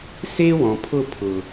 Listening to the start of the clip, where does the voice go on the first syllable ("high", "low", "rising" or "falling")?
high